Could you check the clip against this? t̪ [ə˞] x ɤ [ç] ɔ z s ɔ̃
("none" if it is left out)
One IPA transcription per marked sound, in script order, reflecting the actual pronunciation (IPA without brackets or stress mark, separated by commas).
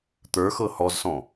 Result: ə˞, h